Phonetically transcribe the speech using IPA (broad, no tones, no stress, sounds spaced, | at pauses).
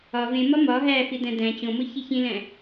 ɒ v ẽ m ɒ m ɒ ɦ æ f i d æ̃ d æ̃ t͡ɕ õ m o ç i ç ĩ l æ̃